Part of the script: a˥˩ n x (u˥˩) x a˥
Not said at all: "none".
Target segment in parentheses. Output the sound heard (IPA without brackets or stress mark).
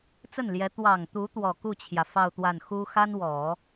u˥